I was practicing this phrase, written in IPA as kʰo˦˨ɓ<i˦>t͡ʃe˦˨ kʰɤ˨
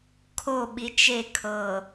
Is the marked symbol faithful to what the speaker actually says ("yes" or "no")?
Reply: no